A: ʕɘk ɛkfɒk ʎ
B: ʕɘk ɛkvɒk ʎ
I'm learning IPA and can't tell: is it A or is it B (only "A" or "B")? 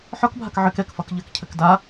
A